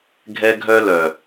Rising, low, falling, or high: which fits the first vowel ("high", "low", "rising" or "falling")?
high